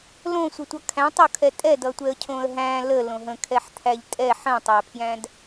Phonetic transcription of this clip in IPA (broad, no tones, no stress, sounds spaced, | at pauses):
l õ sʷ ə tʷ ʌ kʰ æ̃ tˤ o kʰ ɛ tʼ ɛ d ʌ tʷ ɛ ə̯ cʰ õ ə̯ ɦ æ̃ l ə l õ ɦ ə̃ kʰ ɛ ħ t̪ʰ æ ʎ tʼ ɛ ħ ə̃ tˤ æ pʰ j æ̃ d